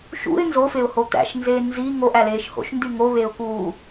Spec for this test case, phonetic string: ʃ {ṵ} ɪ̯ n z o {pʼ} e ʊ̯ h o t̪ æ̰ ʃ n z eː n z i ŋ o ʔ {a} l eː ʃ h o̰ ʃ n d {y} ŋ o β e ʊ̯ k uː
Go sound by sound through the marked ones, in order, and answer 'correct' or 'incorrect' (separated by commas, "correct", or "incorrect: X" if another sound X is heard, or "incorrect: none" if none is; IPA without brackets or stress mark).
correct, incorrect: f, incorrect: æ, correct